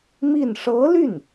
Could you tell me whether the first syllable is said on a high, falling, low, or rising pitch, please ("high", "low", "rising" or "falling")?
falling